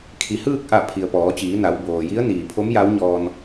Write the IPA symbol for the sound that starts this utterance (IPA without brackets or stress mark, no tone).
kʰ